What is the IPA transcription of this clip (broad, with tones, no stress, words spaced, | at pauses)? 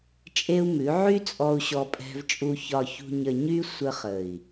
t͡ʃʼe˦u̯mʉ˨˦ ʕy˦ t͡sʼɔ˧u̯ɕɔ˧pʼɛ̤˧vt͡ʃʼu˧ çɒ˨çṳ˨ɲə˨ɲy˧ sʷə˧χə˨i̯